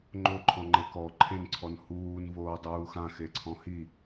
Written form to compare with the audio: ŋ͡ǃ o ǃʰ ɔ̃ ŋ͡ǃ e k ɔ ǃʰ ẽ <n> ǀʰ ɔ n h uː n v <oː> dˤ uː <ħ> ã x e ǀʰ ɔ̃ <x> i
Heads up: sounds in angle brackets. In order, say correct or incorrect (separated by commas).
correct, correct, incorrect, incorrect